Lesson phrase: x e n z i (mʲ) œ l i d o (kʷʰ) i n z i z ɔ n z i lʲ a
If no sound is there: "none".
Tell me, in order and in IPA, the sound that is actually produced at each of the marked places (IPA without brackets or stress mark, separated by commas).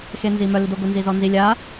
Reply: m, ɡʷ